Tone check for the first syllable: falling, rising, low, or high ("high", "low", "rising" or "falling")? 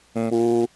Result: high